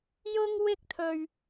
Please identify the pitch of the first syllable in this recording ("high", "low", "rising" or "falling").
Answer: high